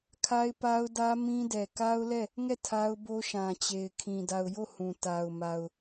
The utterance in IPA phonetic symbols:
kʰa˦ɪ̯pa˦ʊ̯dä˦ mĩ˦dɛ˨ ka˦ʊ̯lɛ˦˨ | ŋɛ˦˨ tʰa˦ʊ̯bo˦ʃã˨t͡ɕe˨ɪ̯ kʰĩ˨ da˨ʊ̯jo˦˨ hũ˨ta˨ʊ̯ma˨ʊ̯

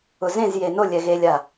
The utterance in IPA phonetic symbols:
ʊzẽzje no lʲɛɣelʲa

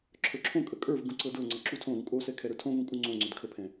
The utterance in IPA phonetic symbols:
ǁʰə˞ǁʰõkʼə kʼə˞v ɡũǀɤdɤŋ͡ǀɤ ǁutʰõɾũ kʼosɛ kʰɛɾə˞tʰõvũ kʼuŋ͡ǀõŋ͡ǀʏd kʰəpʰɛ̃

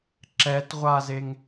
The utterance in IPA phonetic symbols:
ǁɛtʁʷazeŋ

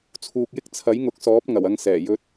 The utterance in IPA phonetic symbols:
t͡sʰuː˨k̚jɪ˥k̚ t͡sʰɐ˨˥jŋʊ˨˥k̚sɔː˨˥p̚ ŋɐ˨˩wɐ˧ŋsɛː˨˩ jɵ˧t̚

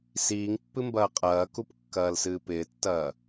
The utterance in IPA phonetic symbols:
siːŋpːɨmbɐː qʼɐːkup kːɐːlsɨːpɪːtːɐː

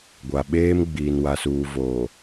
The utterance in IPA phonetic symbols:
ɡʷa˨ɓeː˦m ɡ͡biː˨nwa˨suː˨voː˨

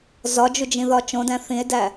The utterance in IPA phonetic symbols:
zɒd͡ʒud͡ʒĩðɒ t͡ʃõdæ̃ θĩe̯dæ

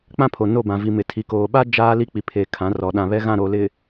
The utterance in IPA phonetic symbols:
k͡pã˦pʰo˨no˦˨bã˨ vi˨ mɪ˨ tʰi˨koː˨ɓa˦ d͡ʒaː˦li˦k͡pi˨pʰe˨ kʰã˨˦rɔ˨ ɗã˨βɛ˦ɣã˦˨ɾo˨ lɪ˨

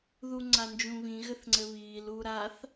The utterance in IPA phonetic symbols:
ðuŋ͡ǀand͡ʒũβĩ ɣɘθŋ͡ǀɘβiːl uɾaθ

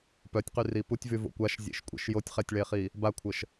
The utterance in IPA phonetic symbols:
pœtʲqyri putʲvyvo̰ kʷaʃzʲḛʃkʷʼɛ̰ʃ jotʲχɛtʲɭeχi | bakʷʰəʃ

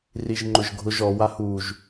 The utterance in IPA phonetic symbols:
riʒŋ͡ǃʊʒɡʱʊʒ ɔ wahuːʒ

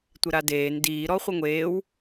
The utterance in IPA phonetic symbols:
tʷɪɾadeːn diːɾɔ χʷɪŋʷeːw

